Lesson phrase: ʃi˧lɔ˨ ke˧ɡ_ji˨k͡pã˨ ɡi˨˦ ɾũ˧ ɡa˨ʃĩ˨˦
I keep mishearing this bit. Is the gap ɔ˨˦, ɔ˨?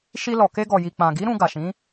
ɔ˨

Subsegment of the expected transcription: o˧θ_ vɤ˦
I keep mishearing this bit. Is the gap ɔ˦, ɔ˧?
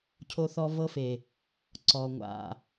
ɔ˧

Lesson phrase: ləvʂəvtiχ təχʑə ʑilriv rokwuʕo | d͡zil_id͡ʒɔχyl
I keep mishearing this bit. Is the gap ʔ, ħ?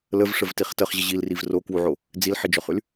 ħ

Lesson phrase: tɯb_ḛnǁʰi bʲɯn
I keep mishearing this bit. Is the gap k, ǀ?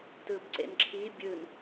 ǀ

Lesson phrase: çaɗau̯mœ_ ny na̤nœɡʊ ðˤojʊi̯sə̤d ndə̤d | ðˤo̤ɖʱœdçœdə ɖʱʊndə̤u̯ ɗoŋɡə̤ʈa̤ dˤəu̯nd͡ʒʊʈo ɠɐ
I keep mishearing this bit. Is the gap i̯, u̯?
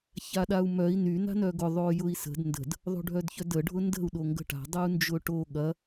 i̯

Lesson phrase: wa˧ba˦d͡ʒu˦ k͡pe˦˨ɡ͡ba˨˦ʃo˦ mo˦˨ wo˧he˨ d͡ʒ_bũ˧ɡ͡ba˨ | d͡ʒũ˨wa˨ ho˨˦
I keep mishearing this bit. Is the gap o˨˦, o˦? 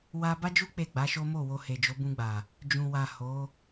o˨˦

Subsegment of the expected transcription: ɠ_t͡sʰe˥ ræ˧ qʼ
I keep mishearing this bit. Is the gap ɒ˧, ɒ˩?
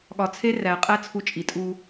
ɒ˧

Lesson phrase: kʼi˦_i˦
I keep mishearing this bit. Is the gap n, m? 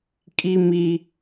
m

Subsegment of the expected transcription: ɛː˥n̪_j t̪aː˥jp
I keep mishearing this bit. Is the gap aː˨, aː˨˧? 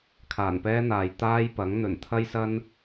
aː˨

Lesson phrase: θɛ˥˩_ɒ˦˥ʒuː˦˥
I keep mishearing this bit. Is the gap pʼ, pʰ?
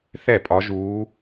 pʼ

